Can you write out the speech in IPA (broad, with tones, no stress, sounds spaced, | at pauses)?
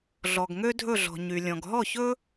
ɮ ɔ˩ ɡ ŋ ø˥ dʱ ɵ˥˩ ɮ ɔ̤˩ ɲ y˩ lʲ ɔ̃˩ ɡ ɦ ɔ˥˩ ç ɵ˥